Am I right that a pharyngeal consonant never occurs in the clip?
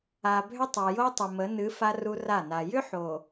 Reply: no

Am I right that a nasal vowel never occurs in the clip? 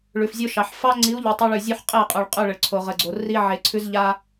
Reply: yes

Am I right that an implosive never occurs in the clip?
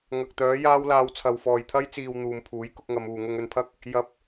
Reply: yes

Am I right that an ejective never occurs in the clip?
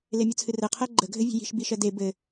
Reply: yes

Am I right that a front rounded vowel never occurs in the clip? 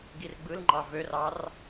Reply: no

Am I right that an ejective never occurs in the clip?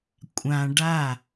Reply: no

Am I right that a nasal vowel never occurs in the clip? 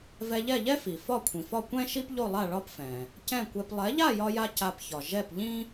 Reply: no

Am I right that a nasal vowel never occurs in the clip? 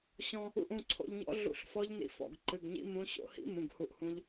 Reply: no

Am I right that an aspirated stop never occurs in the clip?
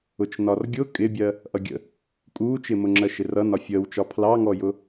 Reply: no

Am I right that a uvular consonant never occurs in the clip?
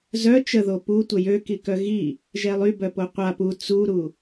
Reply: no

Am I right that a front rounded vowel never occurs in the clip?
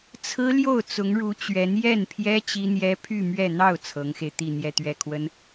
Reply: no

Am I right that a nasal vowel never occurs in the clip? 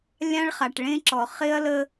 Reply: no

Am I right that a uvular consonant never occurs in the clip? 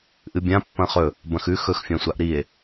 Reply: no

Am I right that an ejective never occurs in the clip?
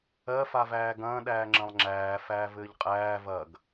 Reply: no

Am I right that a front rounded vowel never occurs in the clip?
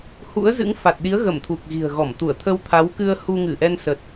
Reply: yes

